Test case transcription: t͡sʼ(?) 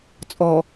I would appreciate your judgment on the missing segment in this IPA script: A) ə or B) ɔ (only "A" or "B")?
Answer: B